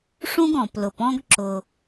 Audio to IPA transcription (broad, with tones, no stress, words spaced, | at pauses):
ʂũ˥ɡ ɔ̃˩plʊ˩pɔ̃˥ɡ ǁʊ˩